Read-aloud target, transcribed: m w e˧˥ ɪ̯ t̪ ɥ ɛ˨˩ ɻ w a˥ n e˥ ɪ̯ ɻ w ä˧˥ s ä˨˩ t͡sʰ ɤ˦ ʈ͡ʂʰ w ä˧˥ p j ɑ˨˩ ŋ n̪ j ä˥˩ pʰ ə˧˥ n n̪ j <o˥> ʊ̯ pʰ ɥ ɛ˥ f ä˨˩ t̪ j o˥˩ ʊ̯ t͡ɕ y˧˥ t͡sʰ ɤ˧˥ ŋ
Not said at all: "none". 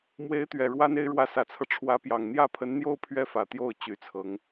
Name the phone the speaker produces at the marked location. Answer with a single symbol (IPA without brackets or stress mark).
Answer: o˥